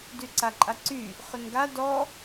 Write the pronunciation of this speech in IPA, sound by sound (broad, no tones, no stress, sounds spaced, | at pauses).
d y ǀ a ǃʼ a ǀ y | χ ʏ n ɡ a d ɔ